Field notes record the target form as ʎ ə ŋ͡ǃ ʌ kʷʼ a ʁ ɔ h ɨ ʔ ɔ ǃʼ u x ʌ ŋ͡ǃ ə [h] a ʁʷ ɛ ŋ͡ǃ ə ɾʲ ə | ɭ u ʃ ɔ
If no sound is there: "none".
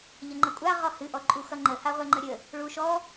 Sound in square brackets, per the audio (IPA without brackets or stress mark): h